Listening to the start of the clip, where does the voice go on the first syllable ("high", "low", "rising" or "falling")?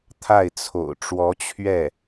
falling